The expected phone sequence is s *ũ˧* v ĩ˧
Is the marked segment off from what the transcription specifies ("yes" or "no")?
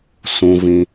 no